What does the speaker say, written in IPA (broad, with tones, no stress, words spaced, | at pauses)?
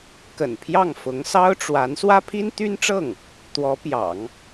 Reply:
kə̰˨˩n pʰjɑ˥˩ŋfʊ˧˥ŋ sɑ˥ʊ̯ʈ͡ʂwa˧˥n swä˥pʰi˥nt̪y˥nʈ͡ʂɤ˥˩ŋ | t̪wɔ˧˥ pjɑ̰˨˩˦ŋ